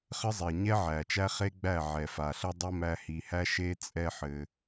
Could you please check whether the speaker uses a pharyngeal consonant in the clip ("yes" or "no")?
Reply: yes